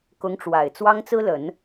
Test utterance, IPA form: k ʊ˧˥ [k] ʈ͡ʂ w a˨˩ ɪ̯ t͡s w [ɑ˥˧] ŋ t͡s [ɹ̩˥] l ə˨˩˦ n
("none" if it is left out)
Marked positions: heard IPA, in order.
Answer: ŋ, ɑ˥, ɹ̩˥

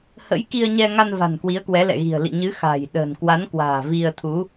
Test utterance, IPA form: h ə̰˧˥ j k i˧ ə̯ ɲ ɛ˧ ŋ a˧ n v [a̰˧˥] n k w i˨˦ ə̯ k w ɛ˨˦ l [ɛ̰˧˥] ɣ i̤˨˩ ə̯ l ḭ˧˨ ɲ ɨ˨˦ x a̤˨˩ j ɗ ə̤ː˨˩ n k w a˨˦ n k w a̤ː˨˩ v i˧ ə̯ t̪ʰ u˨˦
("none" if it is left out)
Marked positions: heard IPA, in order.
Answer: a̤˨˩, ɛ̰˧˨

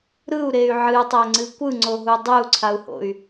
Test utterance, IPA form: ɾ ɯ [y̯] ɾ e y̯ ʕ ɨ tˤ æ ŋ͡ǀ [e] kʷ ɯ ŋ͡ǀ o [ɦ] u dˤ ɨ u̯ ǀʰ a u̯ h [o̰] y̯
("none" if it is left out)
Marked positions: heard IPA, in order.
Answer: u̯, ɨ, ɦ, o̰

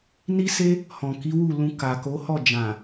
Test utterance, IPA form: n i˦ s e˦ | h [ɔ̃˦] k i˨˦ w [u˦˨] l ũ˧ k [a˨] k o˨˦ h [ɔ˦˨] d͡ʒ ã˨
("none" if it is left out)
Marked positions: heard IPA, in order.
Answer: ɔ̃˨, u˦˨, a˨, ɔ˦˨

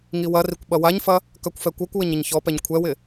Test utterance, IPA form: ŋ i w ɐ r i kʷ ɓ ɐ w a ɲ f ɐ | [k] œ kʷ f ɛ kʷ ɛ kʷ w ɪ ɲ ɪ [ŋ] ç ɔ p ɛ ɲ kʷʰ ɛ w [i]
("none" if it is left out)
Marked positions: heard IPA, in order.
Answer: k, ɲ, ɪ

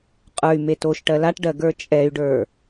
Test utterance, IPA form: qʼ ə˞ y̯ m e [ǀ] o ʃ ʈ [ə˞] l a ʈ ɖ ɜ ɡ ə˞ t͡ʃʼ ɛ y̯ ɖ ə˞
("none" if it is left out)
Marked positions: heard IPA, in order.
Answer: t, ɜ

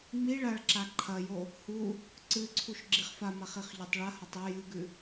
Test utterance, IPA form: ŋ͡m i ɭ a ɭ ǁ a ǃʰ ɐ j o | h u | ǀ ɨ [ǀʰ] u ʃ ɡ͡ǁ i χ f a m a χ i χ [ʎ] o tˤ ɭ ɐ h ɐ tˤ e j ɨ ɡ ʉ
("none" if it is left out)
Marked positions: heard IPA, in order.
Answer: ǀʰ, ʎ

